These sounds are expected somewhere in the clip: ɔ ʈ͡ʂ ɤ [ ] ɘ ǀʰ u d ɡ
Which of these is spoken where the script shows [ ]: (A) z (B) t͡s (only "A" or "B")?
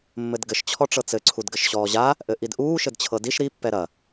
B